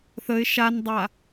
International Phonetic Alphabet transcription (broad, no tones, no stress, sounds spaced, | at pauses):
θ ə ɪ̯ ʃ a n dˤ a